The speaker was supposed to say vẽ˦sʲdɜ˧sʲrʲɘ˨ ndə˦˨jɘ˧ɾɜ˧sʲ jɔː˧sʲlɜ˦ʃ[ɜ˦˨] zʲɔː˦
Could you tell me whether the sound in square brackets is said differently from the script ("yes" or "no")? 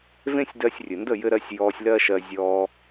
yes